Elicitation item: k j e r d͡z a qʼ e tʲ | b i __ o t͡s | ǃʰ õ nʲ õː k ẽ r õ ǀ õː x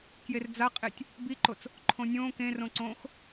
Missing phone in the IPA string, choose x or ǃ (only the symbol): ǃ